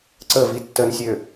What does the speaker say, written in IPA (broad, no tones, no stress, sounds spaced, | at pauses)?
ǀ ə v i tː ə n sʲ ø